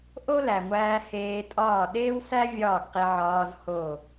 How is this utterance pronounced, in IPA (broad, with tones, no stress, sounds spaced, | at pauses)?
ʔ o˦ l æ˨ ŋʷ æː˧ h eː˧ tʼ ɒː˦˨ ɗ eː˦ w s æ˦ vʲ ɒː˦˨ ɡ q i˧ ʕ ɒː˧ z h o˦˨